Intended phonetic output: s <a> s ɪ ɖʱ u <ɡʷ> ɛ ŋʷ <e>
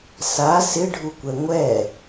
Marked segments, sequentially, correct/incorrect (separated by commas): correct, incorrect, incorrect